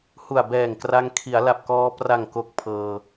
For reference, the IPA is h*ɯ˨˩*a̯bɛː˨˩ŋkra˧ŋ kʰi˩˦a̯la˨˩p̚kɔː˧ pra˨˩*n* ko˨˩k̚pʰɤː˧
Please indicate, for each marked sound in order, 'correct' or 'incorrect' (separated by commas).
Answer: incorrect, incorrect